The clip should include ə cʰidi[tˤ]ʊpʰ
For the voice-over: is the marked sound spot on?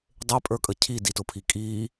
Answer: no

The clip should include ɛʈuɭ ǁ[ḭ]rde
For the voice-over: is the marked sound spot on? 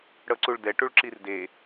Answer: no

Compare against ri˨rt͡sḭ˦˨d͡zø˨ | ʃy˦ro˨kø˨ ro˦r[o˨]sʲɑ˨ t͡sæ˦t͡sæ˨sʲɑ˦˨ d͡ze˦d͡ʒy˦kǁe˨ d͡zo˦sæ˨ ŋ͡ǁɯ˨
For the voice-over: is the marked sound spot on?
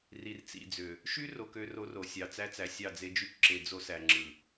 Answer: yes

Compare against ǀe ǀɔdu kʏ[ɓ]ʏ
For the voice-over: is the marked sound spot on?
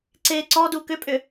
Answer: no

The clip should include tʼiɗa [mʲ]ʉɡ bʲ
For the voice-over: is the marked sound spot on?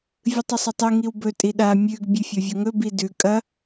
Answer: yes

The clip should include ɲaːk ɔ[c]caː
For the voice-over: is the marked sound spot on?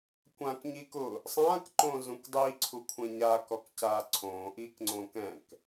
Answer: no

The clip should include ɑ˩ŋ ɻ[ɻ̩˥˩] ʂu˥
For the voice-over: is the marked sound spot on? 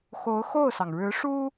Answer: no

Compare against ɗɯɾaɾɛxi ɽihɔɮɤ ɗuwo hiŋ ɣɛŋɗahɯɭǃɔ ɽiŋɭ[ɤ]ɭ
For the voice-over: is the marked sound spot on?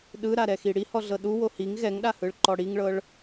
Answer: yes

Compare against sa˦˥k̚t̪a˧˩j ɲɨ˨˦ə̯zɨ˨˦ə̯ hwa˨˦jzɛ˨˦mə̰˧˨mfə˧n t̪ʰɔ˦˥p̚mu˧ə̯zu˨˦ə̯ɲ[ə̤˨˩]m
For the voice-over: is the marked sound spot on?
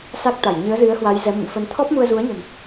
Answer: yes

